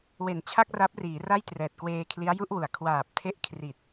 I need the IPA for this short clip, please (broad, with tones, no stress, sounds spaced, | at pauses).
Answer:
w e˨˩ n t͡ɕʰ a˥˩ k̚ r a˦˥ p̚ r iː˩˦ r a˥˩ j t r ɛː˨˩ t̚ k w eː˧ kʰ l i˦˥ a̯ j u˥˩ ʔ w u˩˦ a̯ kʰ w aː˨˩ p̚ tʰ e˦˥ ʔ kʰ r i˨˩ t̚